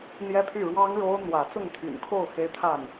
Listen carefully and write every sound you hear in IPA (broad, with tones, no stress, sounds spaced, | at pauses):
n̪ j ɛ˦ pʰ y˥˨ ɻ w ɑ˦ ŋ ɻ o˦ ʊ̯ n̪ w ä˨˦ t͡s ʊ˥˨ ŋ t̪ʰ y̰˨˩ n kʰ o˥˨ ʊ̯ x e˦ ɪ̯ t̪ʰ a˥˨ n